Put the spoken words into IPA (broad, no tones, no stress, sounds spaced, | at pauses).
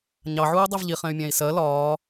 ɲ ɑ ʕ uː dˤ i v ʎ i χ ɛ̃ y̯ mʲ æ̃ i̯ s ɜ l ɒː